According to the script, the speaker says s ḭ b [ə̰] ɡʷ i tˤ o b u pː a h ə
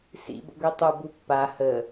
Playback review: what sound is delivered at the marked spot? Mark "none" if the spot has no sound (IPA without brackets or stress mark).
ə̰